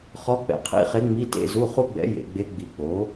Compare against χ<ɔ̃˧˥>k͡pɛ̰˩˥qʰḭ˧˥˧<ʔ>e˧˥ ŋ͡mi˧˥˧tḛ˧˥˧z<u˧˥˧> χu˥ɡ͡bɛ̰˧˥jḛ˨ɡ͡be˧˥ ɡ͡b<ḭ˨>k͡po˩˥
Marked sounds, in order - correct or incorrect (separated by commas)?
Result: incorrect, incorrect, correct, incorrect